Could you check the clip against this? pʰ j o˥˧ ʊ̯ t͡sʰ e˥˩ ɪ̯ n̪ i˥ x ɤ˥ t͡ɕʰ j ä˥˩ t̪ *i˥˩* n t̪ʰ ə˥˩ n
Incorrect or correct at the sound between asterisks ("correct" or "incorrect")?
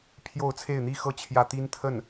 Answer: incorrect